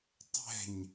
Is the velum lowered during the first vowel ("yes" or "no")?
no